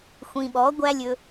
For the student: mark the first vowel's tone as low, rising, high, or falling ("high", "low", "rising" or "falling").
low